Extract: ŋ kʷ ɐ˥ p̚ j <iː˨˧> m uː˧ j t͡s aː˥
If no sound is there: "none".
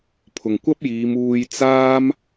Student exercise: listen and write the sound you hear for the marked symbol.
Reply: iː˨˧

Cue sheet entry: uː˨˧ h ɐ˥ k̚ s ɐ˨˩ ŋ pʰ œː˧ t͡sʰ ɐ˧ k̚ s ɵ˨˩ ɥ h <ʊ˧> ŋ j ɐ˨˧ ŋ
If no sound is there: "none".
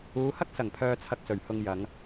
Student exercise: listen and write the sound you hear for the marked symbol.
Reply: ʊ˧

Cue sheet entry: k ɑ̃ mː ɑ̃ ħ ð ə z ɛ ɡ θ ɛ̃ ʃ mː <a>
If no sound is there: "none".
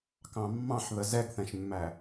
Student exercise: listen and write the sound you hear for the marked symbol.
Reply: æ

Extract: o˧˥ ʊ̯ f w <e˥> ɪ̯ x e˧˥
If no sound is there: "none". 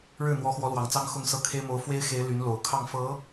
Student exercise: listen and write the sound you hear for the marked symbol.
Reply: e˥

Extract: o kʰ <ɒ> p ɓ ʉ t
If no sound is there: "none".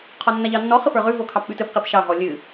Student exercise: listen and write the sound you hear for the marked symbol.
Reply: ɑ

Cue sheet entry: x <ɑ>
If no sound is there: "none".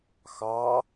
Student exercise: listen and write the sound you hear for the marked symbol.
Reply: ɑ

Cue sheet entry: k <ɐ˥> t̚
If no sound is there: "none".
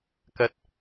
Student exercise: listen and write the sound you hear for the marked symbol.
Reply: ɐ˧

